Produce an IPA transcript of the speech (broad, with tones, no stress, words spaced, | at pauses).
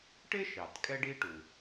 ʈɪ˥ʃɑ˩t kʼɛ˥ɖi˥ʈu˩